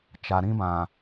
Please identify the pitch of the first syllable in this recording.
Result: low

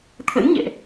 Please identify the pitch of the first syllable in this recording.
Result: rising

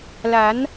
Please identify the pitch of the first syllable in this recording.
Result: rising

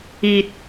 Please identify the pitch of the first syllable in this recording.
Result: low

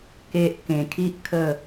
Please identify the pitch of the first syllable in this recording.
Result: low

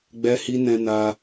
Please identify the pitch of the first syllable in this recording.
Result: high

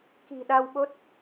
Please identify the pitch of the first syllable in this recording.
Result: low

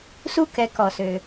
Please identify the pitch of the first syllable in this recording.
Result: high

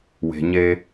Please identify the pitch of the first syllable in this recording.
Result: low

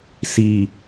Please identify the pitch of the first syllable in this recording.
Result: low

